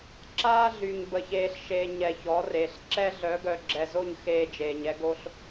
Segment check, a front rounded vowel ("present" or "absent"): present